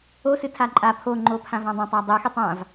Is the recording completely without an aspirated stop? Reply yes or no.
no